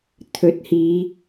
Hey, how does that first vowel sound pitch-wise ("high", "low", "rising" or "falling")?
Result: rising